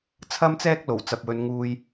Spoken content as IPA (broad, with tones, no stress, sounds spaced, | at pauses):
t͡sʰ ɐ˥ m t͡s ɛː˥ k̚ l o˨˩ w t͡s ɐ˨ p̚ w ɵ˨˧ n ŋ uː˧ j